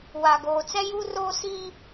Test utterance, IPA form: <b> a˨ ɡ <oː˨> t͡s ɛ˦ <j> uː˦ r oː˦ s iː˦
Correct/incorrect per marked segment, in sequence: incorrect: w, correct, correct

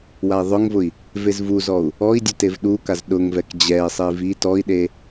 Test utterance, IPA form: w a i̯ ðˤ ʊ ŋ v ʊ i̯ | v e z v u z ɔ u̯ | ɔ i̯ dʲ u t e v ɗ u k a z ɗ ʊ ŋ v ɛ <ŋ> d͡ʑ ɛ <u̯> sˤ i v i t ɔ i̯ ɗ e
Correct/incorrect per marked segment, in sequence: incorrect: k, incorrect: i̯

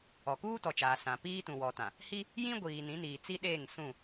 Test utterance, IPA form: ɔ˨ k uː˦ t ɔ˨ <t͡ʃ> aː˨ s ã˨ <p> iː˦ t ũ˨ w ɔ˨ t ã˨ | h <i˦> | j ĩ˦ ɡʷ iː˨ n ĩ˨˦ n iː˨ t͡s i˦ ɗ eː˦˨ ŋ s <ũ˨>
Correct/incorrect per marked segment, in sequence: correct, correct, correct, incorrect: ũ˦˨

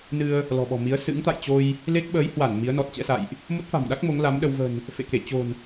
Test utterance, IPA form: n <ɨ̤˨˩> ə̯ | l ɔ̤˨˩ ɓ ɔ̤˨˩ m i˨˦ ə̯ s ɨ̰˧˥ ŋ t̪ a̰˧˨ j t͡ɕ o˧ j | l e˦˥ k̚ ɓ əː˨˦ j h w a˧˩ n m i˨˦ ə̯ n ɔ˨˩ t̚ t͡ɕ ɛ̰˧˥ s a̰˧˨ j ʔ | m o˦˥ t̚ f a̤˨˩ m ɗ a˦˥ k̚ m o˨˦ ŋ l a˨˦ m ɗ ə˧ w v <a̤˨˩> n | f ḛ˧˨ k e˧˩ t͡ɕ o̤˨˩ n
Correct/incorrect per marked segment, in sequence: incorrect: ɨ˧, incorrect: ə̤˨˩

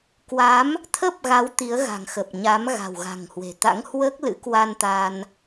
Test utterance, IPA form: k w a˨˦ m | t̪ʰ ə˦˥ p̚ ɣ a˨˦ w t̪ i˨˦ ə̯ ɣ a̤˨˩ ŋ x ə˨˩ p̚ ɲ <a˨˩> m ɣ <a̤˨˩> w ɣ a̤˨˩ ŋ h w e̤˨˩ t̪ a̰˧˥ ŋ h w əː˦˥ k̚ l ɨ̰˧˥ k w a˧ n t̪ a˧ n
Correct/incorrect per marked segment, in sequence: incorrect: a˨˦, correct

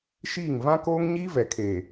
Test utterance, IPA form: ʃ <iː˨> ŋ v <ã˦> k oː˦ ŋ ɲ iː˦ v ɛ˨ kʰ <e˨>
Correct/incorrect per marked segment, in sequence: incorrect: iː˦˨, correct, incorrect: eː˨

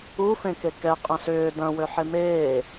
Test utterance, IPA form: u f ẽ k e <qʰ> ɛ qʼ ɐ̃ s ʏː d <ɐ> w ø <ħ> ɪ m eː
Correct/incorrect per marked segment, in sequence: incorrect: k, incorrect: ɐ̃, correct

